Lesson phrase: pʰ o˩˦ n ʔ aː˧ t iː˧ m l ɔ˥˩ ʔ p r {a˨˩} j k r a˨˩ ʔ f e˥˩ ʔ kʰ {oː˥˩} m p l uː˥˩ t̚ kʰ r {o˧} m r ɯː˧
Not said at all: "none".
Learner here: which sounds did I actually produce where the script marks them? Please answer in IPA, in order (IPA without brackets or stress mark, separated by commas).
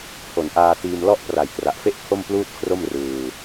a˨˩, o˥˩, o˥˩